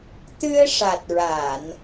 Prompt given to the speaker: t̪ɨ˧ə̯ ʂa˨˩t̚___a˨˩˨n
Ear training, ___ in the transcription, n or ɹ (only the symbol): ɹ